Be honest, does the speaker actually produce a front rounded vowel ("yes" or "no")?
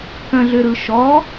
yes